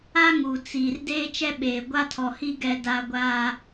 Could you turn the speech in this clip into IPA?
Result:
a˦ ŋ u˨ t͡s iː˨ r d eː˦ t͡ʃ ɛ˦ ɓ eː˨ ɡʷ a˦ tʰ ɔ˨ h i˦ ɡ ɛ˦ d a˦ ɡʷ a˦

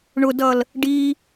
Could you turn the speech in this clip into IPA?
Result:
ɳ ʊ d ʌ l | ɖ i

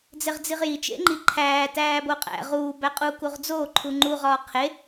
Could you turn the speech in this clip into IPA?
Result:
d͡z e ʁ d͡z i ʁ j i t͡ʃ ḛ ŋ͡ǃ i ǃʰ æː t æː b o qʼ æ̰ ʁ uː b æ qʼ u k u ʁ d͡z oː ǃʰ u ŋ͡ǃ u ʁ ɒː qʰ e

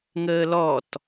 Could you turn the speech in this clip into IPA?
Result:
ŋ əː l ɔ t

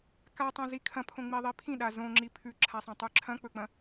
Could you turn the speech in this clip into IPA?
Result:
k a tˤ õ z i kʰ ɐ̃ pʰ õ ŋ͡m i ðˤ i pʰ ĩ ɗ a z õ ŋ͡ǁ i pʰ ʉ ǁʰ a sˤ õ tˤ ʉ ǁʰ ɐ̃ k͡p ɵ k͡p ɐ̃

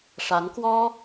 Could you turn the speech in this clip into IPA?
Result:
ʂ a˧˥ n k w ɔ˥

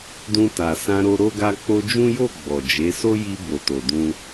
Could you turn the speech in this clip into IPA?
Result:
d ũ˧ t a˨ s ã˧ ɾ o˧ ɾ o˦ ɡ a˧ k͡p o˧ d͡ʒ ũ˦ j o˦˨ ɡ͡b ɔ˨ d͡ʒ e˨˦ s o˦ j i˧ b o˨ t o˨ d ũ˧

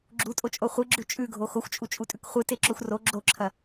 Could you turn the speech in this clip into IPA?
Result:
ɡ͡ǁ u tʼ o t͡ʃʼ o χʷ ɨ ɡ͡ǁ ʉ t͡ʃʼ ʉ ɡʱ o x o xʷ t͡ʃʼ u t͡ʃʼ u tʼ ʉ k χʷ ɨ t e ǁ o xʷ r o ɡ͡ǁ o ǁʰ ɐ

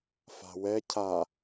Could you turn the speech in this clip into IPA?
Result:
f a̤ w ɛ cʰ a

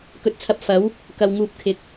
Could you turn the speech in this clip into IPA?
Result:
k ɵ˨˥ t̚ t͡sʰ ɐ˨ p̚ f ɐ˨˥ w | k ɐ˨ w ŋ uː˨ p̚ kʰ ɪ˨˥ k̚

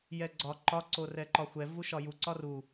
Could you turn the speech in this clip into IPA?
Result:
j ɛ ɡ͡ǀ ɒ ǃ ɒ ǀ o r ɛ ǃ ɒ xʷ ɛ v u ʃ ɒ j u ǀ ɒ r u

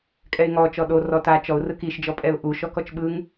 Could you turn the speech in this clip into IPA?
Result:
kʼ ɛ ɪ̯ ŋ ɔ t͡ʃ ɔ ɗ o r ɔ t a t͡ʃ ɔ ʊ̯ r ɯ k i ʃ d͡ʒ ɔ pʼ ɛ ʊ̯ ʔ u ʃ ɔ k ɔ t͡ʃ ɓ ɯ ŋ

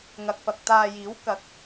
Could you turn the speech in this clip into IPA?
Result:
ŋ ɐ˨ k̚ f ɐ˨ k̚ t̪ aː˧ j iː˨˥ w k ɐ˨˥ k̚

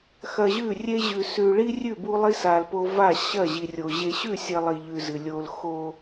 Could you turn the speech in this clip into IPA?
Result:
x ɐ˨ ʑ ʉ˦˨ rʲ e˦ ʑ ʉ˨ s ʉ˨ ɭ i˦ rʲ ʉ˦˨ b u˦ lˠ i˦ s a˨ l p o˦ v a˦˨ ɕ ɐ˦˨ ʑ i˨ rʲ o˨ ʑ e˨ ɕ ʉ˦˨ sʲ ɐ˨ lˠ i˨ ʎ ʉ˨ z ɨ˨ lʲ o˦ l x o˦

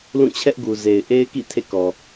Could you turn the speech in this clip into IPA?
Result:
l ũ˦˨ t͡ɕʰ ɛ˦ ʔ ɡ u˨ z e˨ ɪ̯ ʔ e˦ ɪ̯ k ḭ˦˨ tʰ ḛ˦˨ k ɔ˨

